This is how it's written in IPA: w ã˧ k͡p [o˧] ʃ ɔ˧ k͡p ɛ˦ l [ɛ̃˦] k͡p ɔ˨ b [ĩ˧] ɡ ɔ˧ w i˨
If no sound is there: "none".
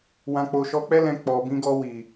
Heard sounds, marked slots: o˧, ɛ̃˧, ĩ˧

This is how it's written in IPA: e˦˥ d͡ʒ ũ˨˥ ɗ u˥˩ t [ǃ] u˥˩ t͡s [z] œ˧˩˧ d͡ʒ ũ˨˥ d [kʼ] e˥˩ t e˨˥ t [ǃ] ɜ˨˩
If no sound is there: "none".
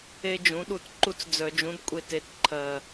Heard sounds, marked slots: ǃ, d͡z, kʷʼ, ǃʰ

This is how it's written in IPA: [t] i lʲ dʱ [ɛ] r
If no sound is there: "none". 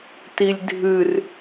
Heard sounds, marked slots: t, ɨ

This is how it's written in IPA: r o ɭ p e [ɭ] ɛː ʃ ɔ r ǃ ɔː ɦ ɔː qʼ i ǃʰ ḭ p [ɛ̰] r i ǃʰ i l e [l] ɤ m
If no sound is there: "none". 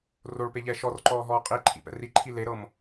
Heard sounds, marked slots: ʎ, ɛ̰, ɾ

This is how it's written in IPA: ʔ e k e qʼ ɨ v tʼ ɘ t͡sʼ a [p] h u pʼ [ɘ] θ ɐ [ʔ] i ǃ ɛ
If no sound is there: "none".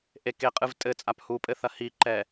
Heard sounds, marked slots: p, ɘ, h

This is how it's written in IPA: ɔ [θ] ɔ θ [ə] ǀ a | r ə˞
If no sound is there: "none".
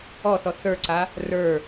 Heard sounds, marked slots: θ, ə˞

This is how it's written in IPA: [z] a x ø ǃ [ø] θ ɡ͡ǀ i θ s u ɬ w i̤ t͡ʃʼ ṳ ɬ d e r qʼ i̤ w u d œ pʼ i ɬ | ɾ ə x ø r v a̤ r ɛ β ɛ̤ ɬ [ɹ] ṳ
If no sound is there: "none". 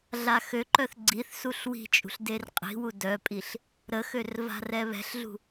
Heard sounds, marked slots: ɮ, œ, ɮ

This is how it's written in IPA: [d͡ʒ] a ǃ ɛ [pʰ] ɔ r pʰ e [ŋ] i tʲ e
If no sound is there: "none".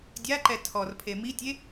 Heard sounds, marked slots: dʲ, tʰ, m

